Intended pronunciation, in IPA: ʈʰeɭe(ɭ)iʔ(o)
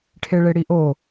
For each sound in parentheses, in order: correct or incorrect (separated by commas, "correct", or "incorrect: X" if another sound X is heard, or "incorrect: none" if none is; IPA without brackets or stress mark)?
incorrect: ɽ, correct